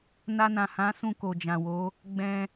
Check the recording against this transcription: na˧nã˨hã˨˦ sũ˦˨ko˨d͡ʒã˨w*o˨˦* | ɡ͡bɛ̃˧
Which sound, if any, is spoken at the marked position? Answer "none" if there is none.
o˨˦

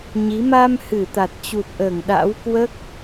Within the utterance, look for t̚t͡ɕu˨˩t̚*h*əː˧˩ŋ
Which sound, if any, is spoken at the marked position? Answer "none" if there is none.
ʔ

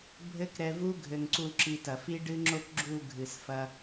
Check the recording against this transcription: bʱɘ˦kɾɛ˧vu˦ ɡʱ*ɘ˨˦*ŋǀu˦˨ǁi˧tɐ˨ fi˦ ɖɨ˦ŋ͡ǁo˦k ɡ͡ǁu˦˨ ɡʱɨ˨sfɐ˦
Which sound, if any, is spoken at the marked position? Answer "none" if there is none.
ɘ˧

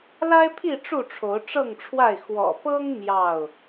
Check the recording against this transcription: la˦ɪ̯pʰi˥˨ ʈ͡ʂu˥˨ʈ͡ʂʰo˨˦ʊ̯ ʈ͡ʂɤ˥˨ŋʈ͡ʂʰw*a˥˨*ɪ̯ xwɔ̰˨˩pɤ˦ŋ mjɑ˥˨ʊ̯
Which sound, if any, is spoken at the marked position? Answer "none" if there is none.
a˥˨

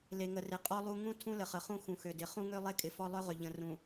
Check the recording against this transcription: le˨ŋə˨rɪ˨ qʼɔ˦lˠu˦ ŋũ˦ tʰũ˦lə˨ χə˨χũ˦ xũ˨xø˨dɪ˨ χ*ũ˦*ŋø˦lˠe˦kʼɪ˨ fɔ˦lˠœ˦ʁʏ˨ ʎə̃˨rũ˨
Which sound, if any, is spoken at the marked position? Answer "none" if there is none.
ũ˦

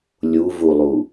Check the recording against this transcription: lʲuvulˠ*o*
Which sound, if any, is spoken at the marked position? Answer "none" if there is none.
u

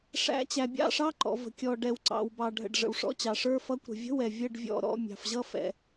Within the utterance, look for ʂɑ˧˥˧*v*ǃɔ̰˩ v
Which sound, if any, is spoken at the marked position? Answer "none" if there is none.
none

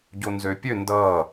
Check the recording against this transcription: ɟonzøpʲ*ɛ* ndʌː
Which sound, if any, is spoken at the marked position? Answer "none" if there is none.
ø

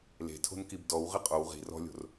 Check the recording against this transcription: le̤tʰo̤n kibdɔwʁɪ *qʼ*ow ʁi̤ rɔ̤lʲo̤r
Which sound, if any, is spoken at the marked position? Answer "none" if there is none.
qʼ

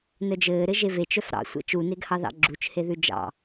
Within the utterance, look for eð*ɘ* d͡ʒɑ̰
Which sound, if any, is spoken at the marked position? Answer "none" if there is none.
ʉ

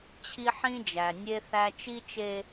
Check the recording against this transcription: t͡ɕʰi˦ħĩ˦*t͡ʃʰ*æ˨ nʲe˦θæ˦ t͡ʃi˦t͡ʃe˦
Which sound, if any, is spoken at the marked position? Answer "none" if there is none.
d͡ʒ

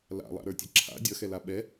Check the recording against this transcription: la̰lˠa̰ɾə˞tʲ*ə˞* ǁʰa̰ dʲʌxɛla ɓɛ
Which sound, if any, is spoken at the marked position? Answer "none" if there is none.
ʌ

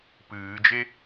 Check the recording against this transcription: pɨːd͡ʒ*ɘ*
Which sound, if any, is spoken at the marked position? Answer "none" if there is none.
e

